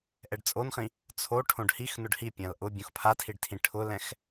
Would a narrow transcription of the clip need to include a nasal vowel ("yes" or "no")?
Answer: yes